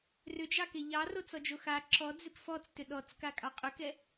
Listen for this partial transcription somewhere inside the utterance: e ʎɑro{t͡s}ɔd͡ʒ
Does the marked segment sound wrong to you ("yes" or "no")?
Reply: no